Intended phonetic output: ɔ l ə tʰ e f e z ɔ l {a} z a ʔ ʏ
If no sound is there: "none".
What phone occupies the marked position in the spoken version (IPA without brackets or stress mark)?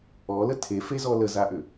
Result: ə